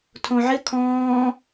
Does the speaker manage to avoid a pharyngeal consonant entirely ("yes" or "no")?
no